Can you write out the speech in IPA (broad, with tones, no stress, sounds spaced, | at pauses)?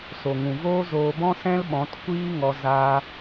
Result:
s o˨ ŋ ũ˨ v oː˦ z oː˧ b ɔ̃˦ s ɛ̃˦ l ɓ ɔ̃˨˦ t kʷ iː˦ ŋ ɔ˧ z a˦